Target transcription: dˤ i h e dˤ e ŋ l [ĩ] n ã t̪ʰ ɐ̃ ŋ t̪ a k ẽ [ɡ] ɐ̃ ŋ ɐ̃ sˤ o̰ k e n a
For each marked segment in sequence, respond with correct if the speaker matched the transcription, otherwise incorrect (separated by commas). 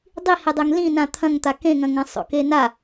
correct, incorrect